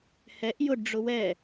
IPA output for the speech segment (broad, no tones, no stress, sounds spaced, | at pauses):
h ɛ ʔ j ʊ ɖ ɖ͡ʐ ʊ w ɛ